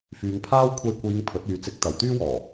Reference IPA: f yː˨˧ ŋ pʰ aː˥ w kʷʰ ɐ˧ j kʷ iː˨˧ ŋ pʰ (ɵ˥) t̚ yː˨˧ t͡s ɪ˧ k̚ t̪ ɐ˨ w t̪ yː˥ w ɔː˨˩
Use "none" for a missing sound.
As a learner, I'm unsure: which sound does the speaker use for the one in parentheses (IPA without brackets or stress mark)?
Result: ɵ˨˥